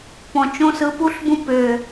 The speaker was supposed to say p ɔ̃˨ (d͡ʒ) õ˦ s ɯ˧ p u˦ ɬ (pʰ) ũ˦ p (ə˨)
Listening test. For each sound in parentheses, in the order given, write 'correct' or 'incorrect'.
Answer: incorrect: t͡ʃ, incorrect: b, incorrect: ʏ˨

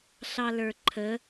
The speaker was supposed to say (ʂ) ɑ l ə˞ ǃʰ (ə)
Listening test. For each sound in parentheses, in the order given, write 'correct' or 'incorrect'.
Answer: incorrect: ɬ, correct

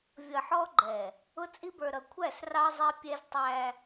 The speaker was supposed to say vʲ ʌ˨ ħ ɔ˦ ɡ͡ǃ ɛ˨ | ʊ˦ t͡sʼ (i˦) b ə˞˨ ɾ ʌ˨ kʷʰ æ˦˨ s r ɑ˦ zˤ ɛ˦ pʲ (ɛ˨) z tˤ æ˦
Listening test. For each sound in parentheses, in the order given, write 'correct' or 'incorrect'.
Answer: correct, incorrect: ɛ˦

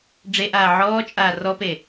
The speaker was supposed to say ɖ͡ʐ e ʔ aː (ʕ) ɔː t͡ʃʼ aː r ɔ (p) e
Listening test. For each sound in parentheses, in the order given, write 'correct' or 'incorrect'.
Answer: correct, correct

